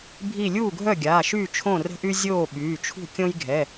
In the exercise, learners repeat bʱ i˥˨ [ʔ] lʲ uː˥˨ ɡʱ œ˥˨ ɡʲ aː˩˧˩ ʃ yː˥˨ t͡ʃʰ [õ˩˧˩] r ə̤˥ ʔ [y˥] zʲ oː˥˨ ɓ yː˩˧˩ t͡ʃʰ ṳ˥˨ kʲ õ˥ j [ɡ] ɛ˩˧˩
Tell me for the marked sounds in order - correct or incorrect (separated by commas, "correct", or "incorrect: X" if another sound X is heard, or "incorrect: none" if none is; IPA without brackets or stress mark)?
incorrect: none, incorrect: õ˥˨, correct, incorrect: ɡʱ